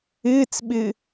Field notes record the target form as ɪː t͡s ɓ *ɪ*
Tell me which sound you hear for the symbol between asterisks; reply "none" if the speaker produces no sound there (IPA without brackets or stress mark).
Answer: ɪ